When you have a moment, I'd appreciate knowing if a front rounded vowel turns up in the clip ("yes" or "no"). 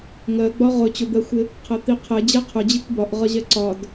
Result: no